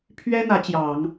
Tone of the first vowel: high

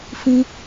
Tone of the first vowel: high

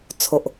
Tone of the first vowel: low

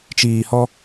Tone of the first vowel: low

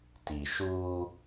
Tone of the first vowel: low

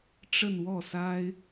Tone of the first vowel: falling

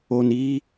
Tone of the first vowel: low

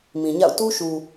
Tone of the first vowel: low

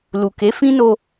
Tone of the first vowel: low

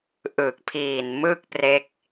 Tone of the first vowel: low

